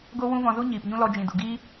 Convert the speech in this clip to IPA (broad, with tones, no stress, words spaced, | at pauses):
ɡo˦wũ˦ vɔ̃˧zu˦ ɲiː˨pɲũ˦ lɔ˧d͡ʒĩ˨du˨ ɡiː˦